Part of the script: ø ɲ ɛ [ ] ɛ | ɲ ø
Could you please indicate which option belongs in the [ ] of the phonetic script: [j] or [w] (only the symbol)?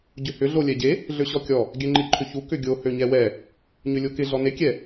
w